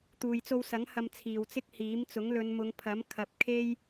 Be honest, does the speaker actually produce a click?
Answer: no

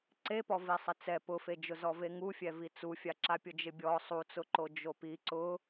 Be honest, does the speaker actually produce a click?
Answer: yes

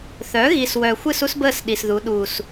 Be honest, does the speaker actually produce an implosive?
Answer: yes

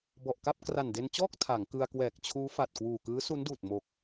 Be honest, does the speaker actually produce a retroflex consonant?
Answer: no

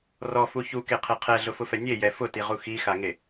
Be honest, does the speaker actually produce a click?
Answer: no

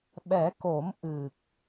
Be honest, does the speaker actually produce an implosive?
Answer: yes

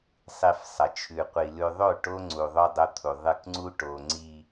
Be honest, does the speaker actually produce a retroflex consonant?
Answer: yes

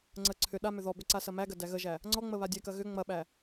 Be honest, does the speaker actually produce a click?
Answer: yes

